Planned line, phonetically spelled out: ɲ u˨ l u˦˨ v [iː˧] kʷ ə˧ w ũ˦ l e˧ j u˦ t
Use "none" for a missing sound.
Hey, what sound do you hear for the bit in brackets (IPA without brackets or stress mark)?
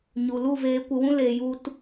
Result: eː˧